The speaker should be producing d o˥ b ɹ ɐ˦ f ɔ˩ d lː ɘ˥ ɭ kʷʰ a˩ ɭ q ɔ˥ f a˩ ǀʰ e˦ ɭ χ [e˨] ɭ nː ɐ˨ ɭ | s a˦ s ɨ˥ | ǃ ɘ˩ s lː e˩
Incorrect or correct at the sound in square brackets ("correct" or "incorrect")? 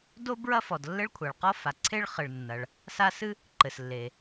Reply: incorrect